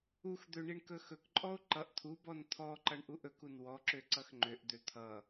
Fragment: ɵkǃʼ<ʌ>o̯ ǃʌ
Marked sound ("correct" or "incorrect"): incorrect